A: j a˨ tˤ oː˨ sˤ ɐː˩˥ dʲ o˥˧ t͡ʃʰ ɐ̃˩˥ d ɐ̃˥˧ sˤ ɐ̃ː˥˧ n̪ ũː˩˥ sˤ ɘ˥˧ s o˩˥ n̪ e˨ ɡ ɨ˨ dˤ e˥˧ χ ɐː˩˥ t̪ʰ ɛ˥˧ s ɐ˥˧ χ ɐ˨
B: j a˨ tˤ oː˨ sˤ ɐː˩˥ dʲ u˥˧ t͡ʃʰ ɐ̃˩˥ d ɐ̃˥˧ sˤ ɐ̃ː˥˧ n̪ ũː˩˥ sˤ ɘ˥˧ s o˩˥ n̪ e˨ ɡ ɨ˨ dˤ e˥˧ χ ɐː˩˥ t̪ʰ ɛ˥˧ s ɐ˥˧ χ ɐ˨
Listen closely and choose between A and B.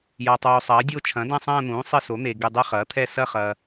A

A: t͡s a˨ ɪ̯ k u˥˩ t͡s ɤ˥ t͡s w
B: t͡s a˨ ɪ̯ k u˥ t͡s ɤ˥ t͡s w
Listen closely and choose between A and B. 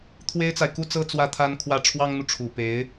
B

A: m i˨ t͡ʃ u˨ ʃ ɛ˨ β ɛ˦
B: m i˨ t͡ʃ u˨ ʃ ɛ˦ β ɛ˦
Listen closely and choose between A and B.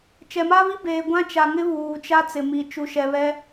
A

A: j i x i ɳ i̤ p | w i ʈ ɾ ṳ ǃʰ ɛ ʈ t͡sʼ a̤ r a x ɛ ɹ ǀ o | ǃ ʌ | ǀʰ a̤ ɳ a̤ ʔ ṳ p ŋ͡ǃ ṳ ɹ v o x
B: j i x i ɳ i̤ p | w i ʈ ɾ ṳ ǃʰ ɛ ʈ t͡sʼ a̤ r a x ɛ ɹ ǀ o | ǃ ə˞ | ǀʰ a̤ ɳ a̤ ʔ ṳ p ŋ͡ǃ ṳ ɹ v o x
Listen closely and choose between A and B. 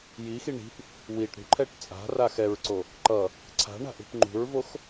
A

